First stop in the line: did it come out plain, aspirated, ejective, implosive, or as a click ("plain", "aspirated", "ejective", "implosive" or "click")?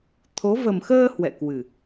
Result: aspirated